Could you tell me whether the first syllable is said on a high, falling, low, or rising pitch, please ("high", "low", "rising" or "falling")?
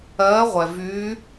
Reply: rising